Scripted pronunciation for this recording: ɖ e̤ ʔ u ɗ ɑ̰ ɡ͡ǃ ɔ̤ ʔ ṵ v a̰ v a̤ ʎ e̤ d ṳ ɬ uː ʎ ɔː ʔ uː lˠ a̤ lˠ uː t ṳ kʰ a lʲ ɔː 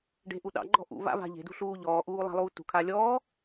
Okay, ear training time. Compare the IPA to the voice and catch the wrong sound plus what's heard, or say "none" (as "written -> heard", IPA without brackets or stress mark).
none